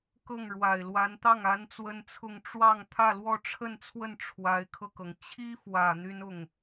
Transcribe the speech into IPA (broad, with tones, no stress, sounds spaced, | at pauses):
k ɤ˥˩ ŋ ɻ w a˨˩ ɪ̯ l w a˧˥ n t̪ ɑ˥˩ ŋ a˥ n t͡s w ə˥ n t͡sʰ ʊ˥˧ ŋ ʈ͡ʂ w ɑ˥˧ ŋ t̪ʰ ä˥˧ l w ɔ˥˧ ʈ͡ʂʰ ə˥˧ n t͡sʰ w ə˥˩ n ʈ͡ʂʰ w a˧˥ ɪ̯ kʰ ɤ˧ k ɤ˩ ŋ t͡ɕʰ i˥ f w ä˨˩ n̪ y˥ n ʊ˥˩ ŋ